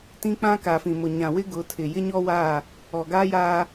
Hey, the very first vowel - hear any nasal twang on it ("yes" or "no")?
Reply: yes